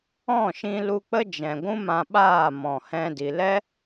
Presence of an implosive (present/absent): present